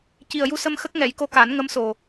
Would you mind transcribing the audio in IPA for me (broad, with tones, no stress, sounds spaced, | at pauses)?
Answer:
c i˨˩ ə̯ j u˧ s ə˧ m x ə˦˥ k̚ ŋ ɛ˨˩˦ j k o˧ k a˨˩˦ n ŋ ə˧˥ m s o˨˩